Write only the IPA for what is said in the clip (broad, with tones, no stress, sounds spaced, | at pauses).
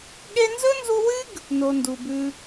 ɠ e˦ n z ɵ˥ n z u˦ w ɨ˥ ɡ | n o˥ n d u˦ b ʉ˥